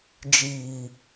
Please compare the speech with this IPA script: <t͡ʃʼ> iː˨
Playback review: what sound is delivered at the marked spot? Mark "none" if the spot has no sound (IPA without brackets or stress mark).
d͡ʒ